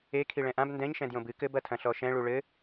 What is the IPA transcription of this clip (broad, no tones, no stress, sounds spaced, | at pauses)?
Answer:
e kʰ i ɭ ɛ̃ ʔ ã b n d ɛ̃ ɲ ʃ ɛ̃ d j õ b ɨ k ɘ b ɐ tʰ ɐ̃ ɬ ɔ ʃ ɛ̃ ɭ u ɭ ɘ